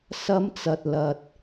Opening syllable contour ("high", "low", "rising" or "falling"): high